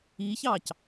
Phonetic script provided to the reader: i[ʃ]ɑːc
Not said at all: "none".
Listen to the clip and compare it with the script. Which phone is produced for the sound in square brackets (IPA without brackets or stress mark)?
ç